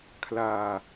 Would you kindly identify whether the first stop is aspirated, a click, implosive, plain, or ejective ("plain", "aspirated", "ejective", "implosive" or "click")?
aspirated